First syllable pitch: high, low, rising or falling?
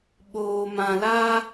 low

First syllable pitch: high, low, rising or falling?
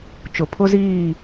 low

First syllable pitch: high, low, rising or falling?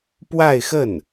falling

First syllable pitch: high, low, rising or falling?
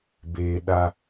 low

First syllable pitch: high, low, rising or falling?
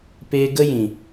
high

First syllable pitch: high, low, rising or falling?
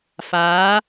rising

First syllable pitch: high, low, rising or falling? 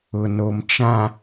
low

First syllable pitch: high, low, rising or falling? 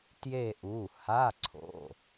falling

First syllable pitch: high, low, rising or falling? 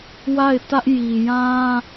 falling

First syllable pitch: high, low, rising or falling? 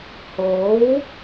rising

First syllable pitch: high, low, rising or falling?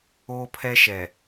high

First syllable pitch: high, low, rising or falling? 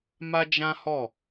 high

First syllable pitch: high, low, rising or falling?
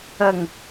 low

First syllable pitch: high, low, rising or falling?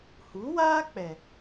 rising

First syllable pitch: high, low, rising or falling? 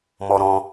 high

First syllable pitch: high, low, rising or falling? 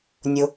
high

